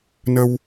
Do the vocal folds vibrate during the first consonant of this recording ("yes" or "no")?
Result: yes